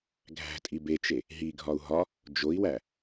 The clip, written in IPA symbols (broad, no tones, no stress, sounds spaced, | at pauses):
ɡʱ æ̤ tʼ i b e t͡ʃ e | ɦ i ɡʱ ɒ u̯ ɦ ɒ | d͡ʒ o i̯ w æ